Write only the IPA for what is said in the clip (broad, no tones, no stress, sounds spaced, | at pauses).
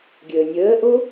ɡʲ əː nʲ əː ʔ o